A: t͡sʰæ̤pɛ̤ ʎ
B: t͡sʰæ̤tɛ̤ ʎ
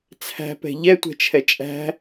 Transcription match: A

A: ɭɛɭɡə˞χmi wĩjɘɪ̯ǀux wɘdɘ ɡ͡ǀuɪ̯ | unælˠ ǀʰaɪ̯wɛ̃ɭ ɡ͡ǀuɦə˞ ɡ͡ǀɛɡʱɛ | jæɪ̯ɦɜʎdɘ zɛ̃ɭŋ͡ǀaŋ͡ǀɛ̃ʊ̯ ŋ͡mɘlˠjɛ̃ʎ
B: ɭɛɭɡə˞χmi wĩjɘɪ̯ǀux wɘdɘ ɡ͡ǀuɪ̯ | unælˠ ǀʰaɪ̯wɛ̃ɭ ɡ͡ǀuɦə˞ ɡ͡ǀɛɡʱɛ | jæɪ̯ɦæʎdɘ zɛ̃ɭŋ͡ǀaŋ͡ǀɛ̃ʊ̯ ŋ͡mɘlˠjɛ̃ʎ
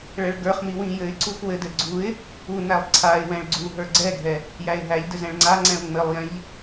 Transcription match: B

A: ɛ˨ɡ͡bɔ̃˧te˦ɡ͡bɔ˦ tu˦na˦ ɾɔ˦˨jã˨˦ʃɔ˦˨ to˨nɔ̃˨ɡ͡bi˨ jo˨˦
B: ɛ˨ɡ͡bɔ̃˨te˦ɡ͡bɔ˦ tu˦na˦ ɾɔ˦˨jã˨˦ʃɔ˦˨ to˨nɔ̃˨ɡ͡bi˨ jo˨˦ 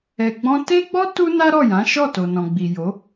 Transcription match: A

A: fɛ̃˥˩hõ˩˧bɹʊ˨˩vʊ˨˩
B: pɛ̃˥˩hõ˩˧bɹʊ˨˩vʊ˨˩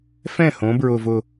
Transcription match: A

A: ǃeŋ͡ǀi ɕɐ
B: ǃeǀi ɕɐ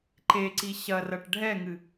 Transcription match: B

